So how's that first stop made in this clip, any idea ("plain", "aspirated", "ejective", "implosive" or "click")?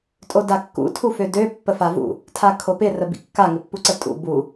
ejective